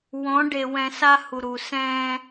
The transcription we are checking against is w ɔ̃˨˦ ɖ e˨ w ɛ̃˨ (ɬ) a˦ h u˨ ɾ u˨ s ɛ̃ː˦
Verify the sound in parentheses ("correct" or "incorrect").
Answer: incorrect